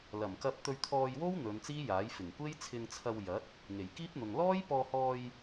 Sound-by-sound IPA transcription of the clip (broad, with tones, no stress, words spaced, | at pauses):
lɐ˨˩mkɐ˧p̚ t̪ɵ˧ɥt̪ʰɔː˧jwo˥w n̪ɵ˨˧nt͡siː˥jaː˨˥j fɪ˨˩ŋkʷe˥jt͡sʰɪ˧ŋt͡sʰɐ˧w jɐ˨˥t̚ | ŋe˨˩jkiː˥p̚n̪ʊ˨ŋ lɔː˥j pɔː˧hɔː˧j